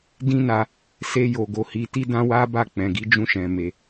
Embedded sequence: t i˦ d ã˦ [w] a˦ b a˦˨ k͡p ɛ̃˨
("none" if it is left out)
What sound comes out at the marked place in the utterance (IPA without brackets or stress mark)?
w